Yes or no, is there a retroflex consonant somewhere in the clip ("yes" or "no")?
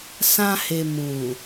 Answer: no